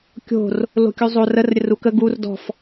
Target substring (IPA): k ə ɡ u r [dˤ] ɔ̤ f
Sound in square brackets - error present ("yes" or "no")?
yes